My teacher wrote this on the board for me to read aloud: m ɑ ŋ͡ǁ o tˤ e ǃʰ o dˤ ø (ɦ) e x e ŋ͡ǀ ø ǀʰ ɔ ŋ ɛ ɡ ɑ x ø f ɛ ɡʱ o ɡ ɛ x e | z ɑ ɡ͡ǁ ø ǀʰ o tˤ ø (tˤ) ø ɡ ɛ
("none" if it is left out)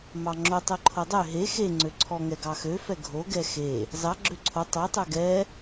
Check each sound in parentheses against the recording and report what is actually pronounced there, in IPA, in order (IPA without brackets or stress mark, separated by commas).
ɦ, tˤ